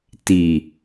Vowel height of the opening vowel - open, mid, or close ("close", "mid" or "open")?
close